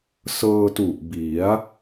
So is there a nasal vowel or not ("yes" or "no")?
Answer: no